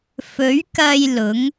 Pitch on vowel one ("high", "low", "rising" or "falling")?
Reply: rising